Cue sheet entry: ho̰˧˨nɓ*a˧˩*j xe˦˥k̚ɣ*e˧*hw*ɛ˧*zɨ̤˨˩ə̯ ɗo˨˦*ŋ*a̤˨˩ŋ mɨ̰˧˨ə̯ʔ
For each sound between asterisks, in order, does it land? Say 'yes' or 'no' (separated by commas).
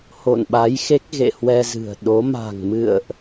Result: no, no, yes, no